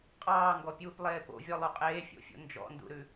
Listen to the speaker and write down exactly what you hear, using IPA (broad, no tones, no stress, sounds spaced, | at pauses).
qʼ ɑː ŋ ɡ ɔ pʲ uː p lˠ eː p o̰ vʲ ɔ lˠ u qʼ eː fʲ o̰ fʲ o̰ n d͡ʒ ɔ̰ n d ṵ ɾ ʉ